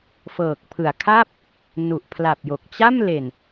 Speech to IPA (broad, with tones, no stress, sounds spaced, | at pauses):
f ɤː˨˩ k̚ pʰ ɯ˩˦ a̯ kʰ a˥˩ p̚ | n u˨˩ ʔ pʰ l a˨˩ p̚ j o˨˩ k̚ t͡ɕ a˥˩ m l e˨˩ n